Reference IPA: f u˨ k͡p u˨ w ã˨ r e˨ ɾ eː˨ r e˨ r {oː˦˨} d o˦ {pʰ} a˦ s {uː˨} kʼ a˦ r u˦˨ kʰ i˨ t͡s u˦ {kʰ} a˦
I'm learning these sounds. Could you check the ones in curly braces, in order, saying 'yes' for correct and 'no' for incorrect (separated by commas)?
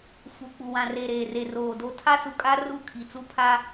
no, no, no, no